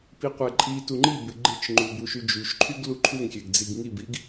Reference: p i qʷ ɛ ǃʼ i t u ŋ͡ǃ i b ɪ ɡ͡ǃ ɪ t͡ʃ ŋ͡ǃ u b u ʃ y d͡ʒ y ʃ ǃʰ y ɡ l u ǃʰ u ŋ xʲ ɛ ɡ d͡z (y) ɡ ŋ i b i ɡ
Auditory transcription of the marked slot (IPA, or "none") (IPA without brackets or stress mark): i